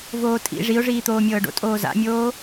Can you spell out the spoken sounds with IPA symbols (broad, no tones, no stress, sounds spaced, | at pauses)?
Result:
v oː tʼ ḭ ʐ i ʊ̯ ʐ iː t̪ oː mʲ ɤː ɖ o̰ tʼ oː z a̰ mʲ oː